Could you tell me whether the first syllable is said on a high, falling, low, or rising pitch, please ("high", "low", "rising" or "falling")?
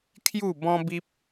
falling